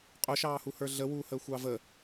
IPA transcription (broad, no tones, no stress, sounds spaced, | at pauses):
qʼ ʊ ʃ ɑː h u h ə˞ ɮ ə w uː h əː xʷ ɑ v ə